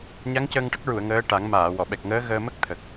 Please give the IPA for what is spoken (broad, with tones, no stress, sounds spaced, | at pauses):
ɲ a˧˥ ŋ c əː˧ ŋ ʈ ə˦˥ k̚ ɹ u˨˩˨ ə̯ ŋ əː˧˥ ʈ a˨˩˦ ŋ m aː˨˩˨ w ɔ˨˩˨ ɓ ɛ˨˩ k̚ ŋ əː˧˥ ɣ əː˧ m ə˦˥ k̚ t̪ʰ ə˨˩ k̚